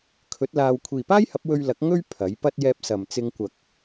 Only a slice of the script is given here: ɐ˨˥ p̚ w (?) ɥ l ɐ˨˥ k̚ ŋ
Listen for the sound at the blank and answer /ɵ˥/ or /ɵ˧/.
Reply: ɵ˧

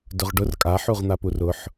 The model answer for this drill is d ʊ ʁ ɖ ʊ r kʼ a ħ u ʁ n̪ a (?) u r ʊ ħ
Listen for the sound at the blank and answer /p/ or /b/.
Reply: p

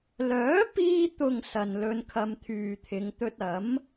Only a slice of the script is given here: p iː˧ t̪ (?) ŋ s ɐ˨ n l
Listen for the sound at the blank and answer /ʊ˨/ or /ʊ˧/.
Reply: ʊ˨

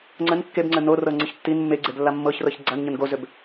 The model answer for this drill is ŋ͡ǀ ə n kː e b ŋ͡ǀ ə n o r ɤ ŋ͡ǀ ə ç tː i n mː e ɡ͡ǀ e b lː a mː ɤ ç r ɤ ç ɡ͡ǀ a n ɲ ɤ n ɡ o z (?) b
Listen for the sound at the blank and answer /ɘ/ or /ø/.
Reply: ø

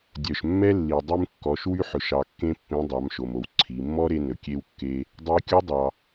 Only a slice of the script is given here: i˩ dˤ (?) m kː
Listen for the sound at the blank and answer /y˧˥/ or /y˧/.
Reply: y˧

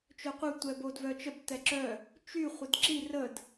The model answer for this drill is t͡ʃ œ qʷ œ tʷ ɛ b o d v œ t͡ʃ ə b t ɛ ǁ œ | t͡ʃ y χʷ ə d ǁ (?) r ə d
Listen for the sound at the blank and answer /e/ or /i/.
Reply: i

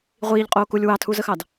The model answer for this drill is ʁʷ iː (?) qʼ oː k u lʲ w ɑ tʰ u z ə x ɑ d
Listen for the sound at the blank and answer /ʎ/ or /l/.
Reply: ʎ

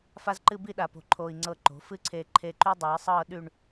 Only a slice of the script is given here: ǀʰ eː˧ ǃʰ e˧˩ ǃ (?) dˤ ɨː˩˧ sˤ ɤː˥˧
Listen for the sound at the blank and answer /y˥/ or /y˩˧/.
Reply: y˥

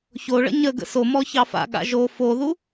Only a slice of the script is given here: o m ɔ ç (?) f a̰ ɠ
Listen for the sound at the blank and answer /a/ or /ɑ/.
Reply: ɑ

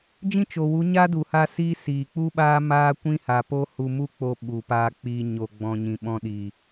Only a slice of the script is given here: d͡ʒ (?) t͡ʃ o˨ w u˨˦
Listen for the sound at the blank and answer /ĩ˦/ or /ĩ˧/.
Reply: ĩ˦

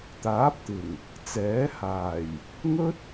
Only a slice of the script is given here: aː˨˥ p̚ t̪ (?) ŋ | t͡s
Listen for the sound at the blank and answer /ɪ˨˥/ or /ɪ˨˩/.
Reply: ɪ˨˩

